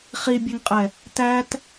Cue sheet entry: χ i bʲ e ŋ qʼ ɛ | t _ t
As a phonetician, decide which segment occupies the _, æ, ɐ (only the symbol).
æ